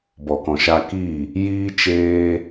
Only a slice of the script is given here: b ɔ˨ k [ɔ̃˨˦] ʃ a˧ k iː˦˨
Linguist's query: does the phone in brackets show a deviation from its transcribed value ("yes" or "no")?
yes